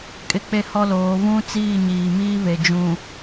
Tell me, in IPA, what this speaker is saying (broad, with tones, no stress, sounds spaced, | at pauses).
kʼ ɪ˦ k͡p e˦ h ɔ˦ l oː˨˦ β ũ˦ t͡s iː˦˨ ɲ iː˨ m iː˦ β e˨ d͡ʒ ũ˨